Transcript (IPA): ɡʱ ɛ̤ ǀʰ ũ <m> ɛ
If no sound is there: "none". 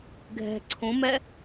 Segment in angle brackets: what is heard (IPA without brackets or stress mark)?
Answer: m